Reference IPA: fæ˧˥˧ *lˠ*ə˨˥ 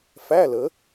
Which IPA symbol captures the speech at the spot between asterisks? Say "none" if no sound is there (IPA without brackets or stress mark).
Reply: l